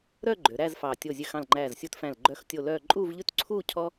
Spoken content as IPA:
ɾœ˥˧ ɡ͡ǃø˩˧ɾæ˥˧zfɑ˧˩ tʲo˧˩zʲø˧ xɑ̃˧˩lŋ͡ǃæː˧˩zsʲu˧tfæ̃˧˩l ɡ͡ǃœ˧˩xtʲo˧˩ lœː˥˧ ǃʼuː˥˧vʎʉ˥t ǀʰuː˥˧ cʰɔ˥

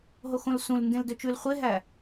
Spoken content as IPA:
ɦoxõlsũlndẽl døt͡ʃʉl χʷeɦæ

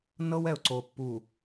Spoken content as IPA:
nɤ˦w ɛ˨ʊ̯ǀo˨pːu˨

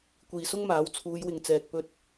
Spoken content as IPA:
kʷiː˨sʊ˥ŋmaː˨˥w t͡sʰuː˨˧jwɪ˨ŋt͡sɛː˨k̚ pɵ˧t̚

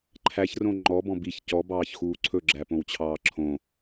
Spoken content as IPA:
ǃʰæçrõ ŋ͡ǃɔbɔ̃ biç cɔbɑːçxuː ǀʰɵɡ͡ǁæpõwt͡ɕʰɑː ǁʰõ

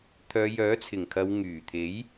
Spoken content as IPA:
t̪ʰœː˨˧jœː˨˥t͡sʰɪ˨˩ŋkʰɐ˨˧w ŋyː˨˩t̪ʰe˨˥j

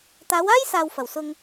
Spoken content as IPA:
t̪aː˨˧waː˥jsaː˨w fɐ˨˩wsʊ˧ŋ

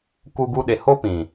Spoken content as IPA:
ku˦ɡu˦ɗe˧ ho˦pĩ˨

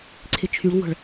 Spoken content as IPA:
ǀʰɪt͡ʃʰyɭŋʷə̤ɭ

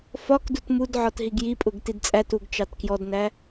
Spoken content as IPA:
fɒkdut mudʕɒt ɦiɡjipʼʊɡ tidt͡sʼætuɡ t͡ʃɑtkjɔdnæ

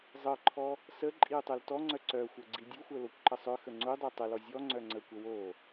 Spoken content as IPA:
zˤɤǃʰɔ | sə ǃʼiu̯tˤœltɔŋ͡ǀœ ǀœxʷɤ ɡ͡ǀidʲuxʷœ lokʷǃəsˤœxə ŋ͡ǀudˤo tˤəlɔ zʲɔ ŋ͡ǀœŋ͡ǀəkʷə wo

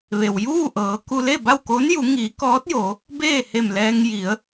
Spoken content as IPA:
ʋe˩wjuː˥˨ʔɤː˩˧ ku˧le˥˨ba˥˨wko˧˥n ju˩˧ŋiː˩˧kɔː˧˥t̚jo˩˧ | beː˥˨he˧˩mlɛː˧ŋ ji˩˧ə̯

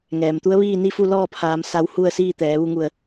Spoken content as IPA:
ŋɛː˩mt̪u˧˥ə̯ʋiː˥˨ ni˥˨fu˥˨lɔː˥˨pʰaː˩˧m sa˧w hu˥˨ə̯siː˥˨t̪ɛː˩˧ ʋu˧ŋu˧˩ə̯

